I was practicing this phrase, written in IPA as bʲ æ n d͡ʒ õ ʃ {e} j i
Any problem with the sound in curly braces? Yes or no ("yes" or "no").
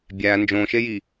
no